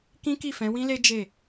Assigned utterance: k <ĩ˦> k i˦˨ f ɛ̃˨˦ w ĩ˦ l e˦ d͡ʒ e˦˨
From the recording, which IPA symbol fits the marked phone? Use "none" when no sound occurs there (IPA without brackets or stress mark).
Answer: ĩ˦